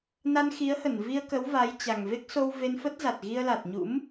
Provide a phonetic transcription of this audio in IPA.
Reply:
na˧nxi˨˦ə̯hə˧˩n vi˧ə̯kə˨˦w va˨˦jt͡ɕa˨˩ŋ ve˦˥k̚so˧wve˧nfə˦˥t̚ za˨˩t̚ɣi˧ə̯la˨˩t̚ ɲṵ˧˥m

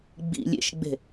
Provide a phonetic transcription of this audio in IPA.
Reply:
ɡ͡bḭ lʲḛʃɡ͡be̤

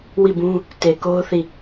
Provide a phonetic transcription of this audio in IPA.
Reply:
wi˦˨bũ˦ | te˨ ko˦ʊ̯θi˦˨

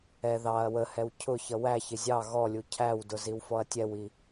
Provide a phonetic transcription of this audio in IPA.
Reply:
ɛ ðɑɐ̯ wəhɛw cʰʊ çʌwæçɪ zʲɑ ɣɔlʲu cʰæwdʊ ziwfɔɐ̯tʲɛwi

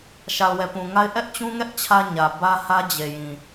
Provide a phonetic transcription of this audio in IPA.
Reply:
ʃa˨ʊ̯wɛ˨pũ˨ŋa˦ɪ̯ ʔɛ˦ʔt͡ɕũ˦ŋɛ˦ʔ t͡ɕʰä˦ ɲä˨bä˦hä˦ d͡ʑe˨jĩ˨

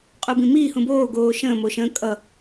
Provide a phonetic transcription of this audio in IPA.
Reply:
qʼubĩmiː hũboː ɡoːʃə̃ː moʃə̃ kʼʌ

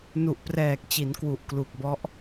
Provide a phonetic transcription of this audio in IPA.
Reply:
nu˨˩ʔprɛː˨˩k̚t͡ɕi˩˦n kwu˨˩ʔklu˨˩k̚bɔ˦˥ʔ

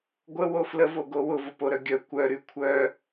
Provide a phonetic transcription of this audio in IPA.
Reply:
ɡʷəwo fləvoɡo wʊvʊpoɾœ ɡʲœ kʷœɾy kʷʰœ

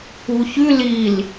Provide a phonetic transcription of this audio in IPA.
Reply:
uçʉ lil

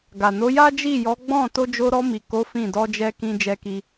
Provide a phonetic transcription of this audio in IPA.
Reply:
ɡa˨no˨˦ ja˦d͡ʒi˦˨jɔ˨˦ ɡ͡bɔ̃˦˨ to˧d͡ʒo˧ɾɔ˧mi˨ ko˨˦ fĩ˦˨ dɔ˧d͡ʒɛ˧kĩ˧ d͡ʒɛ˧ki˧

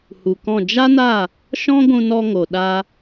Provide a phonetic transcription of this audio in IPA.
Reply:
hu˨kɔ̃˦˨ d͡ʒa˦na˦˨ | ʃɔ̃˦ɡʷũ˧nɔ˧ ŋo˨ɗa˧

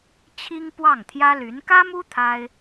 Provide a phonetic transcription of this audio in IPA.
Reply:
t͡ɕʰi˥ŋpwɑ˥˩ŋt̪ʰjä˥ly˧˥n kä˥mu˥ t̪ʰa˥ɪ̯

